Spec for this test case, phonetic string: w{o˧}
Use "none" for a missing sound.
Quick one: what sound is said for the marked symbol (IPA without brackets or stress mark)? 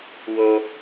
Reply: o˧